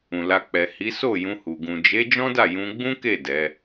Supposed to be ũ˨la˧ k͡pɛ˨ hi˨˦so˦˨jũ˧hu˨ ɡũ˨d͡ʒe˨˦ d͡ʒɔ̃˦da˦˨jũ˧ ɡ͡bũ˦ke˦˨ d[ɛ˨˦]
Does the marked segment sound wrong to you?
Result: no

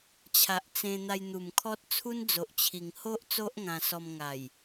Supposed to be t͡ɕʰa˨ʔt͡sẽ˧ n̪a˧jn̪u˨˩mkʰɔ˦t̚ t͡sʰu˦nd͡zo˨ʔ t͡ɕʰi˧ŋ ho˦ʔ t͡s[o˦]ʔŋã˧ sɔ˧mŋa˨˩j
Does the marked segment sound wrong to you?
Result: no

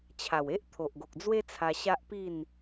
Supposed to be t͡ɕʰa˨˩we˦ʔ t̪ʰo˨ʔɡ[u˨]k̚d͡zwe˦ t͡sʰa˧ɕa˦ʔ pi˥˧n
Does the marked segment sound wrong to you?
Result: yes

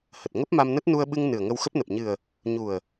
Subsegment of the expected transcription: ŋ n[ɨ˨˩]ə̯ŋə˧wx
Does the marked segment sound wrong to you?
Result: no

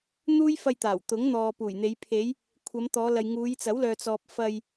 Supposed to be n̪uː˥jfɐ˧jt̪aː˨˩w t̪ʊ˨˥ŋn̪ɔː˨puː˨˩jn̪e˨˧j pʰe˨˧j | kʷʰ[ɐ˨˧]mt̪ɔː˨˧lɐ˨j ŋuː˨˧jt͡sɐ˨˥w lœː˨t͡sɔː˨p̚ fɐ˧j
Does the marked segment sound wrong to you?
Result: no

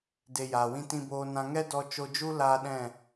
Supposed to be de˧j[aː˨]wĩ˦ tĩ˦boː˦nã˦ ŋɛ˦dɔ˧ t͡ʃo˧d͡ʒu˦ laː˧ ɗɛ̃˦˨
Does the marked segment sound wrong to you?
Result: no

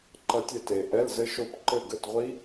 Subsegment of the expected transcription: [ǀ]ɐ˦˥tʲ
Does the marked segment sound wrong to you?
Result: yes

